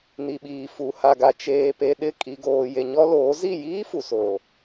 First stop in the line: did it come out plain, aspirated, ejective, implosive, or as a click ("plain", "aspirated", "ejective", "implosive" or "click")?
implosive